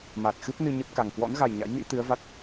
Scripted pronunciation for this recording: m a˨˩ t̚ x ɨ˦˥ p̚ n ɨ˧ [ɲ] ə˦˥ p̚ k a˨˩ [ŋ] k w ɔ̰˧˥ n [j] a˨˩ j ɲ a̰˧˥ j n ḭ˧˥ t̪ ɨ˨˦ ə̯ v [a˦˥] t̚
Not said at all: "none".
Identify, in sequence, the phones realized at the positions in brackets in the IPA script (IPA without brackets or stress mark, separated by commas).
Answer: ɲ, ŋ, ɣ, a˦˥